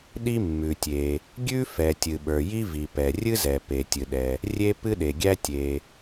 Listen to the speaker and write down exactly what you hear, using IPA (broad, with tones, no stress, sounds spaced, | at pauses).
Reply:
ɗ i˥ mː ʉ˩ tʲ e˩ | ɡʲ ʉ˥ f ɛ˩ tʲ ɨ˩ ɓ ə˞˩ j i˥ v i˩ p ɛ˩ rʲ ɨ˥ z ɛ˩ p e˩ tʲ ɨ˩ ɗ ɛ˩ | rʲ e˥ p ɨ˥ ɗ e˩ ɡʲ æ˥ tʲ e˩